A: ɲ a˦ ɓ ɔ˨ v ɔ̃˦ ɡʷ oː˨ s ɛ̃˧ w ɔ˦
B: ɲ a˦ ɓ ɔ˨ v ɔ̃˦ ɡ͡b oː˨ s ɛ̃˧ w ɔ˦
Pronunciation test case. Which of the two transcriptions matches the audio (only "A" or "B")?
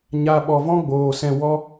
B